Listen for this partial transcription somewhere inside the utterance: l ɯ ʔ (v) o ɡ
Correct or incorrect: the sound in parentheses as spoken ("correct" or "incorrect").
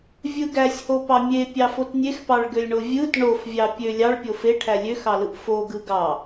incorrect